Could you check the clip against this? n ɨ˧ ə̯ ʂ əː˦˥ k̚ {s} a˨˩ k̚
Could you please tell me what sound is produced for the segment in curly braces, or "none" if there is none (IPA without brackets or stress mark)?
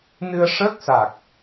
s